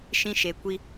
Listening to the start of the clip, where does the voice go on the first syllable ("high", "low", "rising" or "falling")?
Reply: high